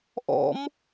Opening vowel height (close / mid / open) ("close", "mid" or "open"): mid